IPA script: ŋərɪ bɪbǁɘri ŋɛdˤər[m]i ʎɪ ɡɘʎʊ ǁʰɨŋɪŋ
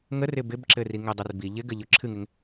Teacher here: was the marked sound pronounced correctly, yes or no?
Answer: no